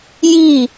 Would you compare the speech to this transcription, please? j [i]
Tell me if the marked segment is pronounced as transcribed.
yes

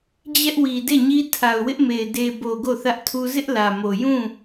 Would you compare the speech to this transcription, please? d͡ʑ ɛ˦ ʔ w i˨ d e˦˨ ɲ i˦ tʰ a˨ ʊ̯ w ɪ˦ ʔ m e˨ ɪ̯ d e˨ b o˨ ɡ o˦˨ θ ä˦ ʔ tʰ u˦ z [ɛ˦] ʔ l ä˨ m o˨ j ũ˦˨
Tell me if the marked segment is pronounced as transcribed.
no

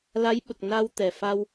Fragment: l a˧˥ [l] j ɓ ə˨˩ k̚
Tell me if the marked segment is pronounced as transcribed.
no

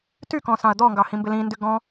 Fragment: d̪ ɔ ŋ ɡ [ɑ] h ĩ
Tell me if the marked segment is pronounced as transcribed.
yes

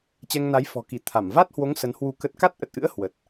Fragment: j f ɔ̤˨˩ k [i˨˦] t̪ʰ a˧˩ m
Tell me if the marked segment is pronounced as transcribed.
no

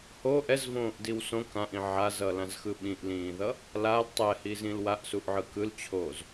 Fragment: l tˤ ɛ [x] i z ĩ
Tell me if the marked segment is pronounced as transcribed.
no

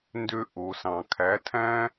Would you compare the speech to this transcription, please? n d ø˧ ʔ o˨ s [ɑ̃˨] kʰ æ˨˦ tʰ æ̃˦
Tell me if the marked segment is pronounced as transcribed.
yes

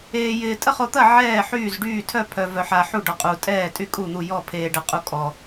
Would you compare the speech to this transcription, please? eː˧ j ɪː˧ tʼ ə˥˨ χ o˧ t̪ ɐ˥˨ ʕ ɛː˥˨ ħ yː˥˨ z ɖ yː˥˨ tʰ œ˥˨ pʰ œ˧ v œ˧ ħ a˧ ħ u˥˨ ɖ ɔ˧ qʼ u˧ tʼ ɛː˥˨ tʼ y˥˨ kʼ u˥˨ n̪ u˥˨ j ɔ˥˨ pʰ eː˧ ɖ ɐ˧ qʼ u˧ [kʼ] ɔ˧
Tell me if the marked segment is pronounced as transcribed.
yes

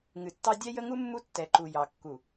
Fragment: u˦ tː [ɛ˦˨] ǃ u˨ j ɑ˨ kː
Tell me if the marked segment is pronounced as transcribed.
no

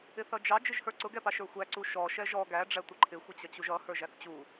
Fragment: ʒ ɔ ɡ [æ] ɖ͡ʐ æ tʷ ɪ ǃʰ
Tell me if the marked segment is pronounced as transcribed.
yes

